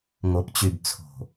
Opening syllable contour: low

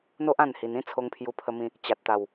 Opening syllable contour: high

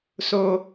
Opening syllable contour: low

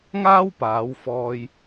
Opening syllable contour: high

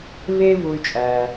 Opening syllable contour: high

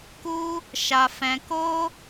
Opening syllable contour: high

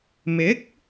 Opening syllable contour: rising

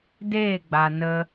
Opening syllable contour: falling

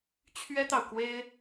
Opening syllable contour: high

